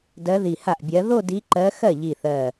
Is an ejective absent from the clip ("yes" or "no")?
yes